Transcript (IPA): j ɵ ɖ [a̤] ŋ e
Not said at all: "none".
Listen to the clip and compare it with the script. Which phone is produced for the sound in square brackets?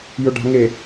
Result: a̤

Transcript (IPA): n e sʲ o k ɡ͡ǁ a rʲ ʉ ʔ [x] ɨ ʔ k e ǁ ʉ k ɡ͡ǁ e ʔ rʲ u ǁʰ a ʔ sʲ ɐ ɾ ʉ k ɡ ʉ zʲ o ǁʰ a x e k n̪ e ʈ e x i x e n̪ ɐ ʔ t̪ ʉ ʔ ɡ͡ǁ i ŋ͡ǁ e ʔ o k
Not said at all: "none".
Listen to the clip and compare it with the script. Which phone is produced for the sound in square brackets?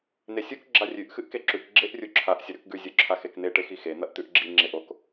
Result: x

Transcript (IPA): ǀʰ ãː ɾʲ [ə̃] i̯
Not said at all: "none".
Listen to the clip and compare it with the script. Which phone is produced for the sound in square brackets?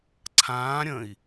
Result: ə̃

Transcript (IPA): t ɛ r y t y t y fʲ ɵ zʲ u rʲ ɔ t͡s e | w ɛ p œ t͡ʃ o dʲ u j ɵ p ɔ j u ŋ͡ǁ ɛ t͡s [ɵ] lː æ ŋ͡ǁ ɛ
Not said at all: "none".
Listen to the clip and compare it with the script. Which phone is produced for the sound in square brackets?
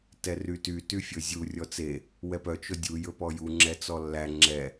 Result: ɔ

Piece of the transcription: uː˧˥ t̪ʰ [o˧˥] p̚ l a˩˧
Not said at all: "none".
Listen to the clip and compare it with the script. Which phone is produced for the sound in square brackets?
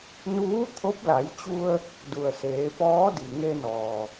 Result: o˧˥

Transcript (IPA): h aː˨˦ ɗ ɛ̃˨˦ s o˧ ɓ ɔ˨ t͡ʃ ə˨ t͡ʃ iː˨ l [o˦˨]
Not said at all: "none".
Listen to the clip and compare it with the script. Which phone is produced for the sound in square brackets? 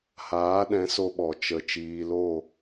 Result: o˦˨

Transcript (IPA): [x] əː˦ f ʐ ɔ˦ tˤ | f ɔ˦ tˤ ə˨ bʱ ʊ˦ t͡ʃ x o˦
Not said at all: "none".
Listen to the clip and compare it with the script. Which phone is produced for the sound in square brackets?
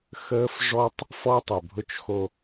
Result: x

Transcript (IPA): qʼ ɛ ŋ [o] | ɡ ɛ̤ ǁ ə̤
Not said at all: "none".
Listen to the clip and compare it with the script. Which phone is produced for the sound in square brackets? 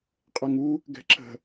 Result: u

